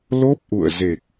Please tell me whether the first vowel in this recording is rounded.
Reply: yes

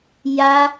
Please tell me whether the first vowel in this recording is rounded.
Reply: no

